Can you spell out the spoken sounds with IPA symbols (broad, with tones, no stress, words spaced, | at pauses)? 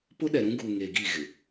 pʊ˦ɗɛ˨ɾũ˦ɡu˨ ŋe˨ɡi˦˨ɣɪ˨